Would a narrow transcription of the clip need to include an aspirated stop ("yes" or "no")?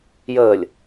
no